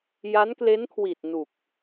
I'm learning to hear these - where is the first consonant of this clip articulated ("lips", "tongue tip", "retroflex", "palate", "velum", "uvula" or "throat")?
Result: palate